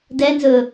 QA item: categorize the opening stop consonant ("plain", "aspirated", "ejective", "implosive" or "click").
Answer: plain